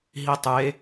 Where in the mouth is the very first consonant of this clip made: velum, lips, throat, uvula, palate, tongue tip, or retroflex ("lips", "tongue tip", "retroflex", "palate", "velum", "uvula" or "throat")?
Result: throat